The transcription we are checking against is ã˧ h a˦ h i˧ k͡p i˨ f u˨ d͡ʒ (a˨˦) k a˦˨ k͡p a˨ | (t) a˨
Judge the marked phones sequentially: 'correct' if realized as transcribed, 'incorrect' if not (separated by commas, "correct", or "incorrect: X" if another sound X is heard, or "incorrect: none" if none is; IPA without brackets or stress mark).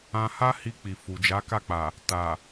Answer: correct, correct